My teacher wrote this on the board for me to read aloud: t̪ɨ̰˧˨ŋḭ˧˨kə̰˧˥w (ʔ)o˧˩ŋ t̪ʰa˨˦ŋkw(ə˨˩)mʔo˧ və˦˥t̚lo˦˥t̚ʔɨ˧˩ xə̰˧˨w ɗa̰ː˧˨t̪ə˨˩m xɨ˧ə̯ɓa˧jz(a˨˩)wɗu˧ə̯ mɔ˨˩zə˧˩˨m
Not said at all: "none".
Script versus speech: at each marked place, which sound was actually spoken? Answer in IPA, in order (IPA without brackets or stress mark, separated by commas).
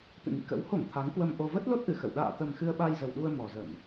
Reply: h, ə˧, ə˨˩